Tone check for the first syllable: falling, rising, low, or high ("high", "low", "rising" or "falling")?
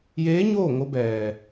rising